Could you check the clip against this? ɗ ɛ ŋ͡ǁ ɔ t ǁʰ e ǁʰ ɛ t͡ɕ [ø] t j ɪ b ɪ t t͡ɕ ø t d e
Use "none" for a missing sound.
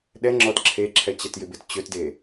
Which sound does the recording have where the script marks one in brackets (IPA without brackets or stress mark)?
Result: ɛ